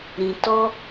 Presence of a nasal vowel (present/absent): present